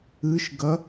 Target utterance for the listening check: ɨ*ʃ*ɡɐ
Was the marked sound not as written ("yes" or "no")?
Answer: no